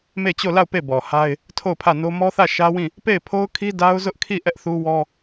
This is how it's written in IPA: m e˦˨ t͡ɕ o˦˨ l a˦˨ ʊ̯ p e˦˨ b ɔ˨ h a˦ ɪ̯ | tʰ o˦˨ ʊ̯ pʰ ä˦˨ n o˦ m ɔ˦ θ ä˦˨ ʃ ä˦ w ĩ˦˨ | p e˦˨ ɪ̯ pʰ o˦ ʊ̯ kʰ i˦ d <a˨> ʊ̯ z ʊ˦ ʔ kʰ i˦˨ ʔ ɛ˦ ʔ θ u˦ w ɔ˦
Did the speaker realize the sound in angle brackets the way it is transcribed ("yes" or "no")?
no